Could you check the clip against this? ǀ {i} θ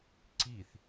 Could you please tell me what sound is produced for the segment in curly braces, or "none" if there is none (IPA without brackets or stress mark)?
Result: i